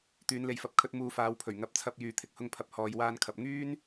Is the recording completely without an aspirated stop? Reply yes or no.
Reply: no